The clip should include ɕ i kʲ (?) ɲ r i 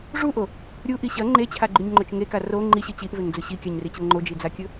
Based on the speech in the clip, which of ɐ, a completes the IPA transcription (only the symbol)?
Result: a